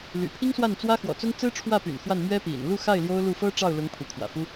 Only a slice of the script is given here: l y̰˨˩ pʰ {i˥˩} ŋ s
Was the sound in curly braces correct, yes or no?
no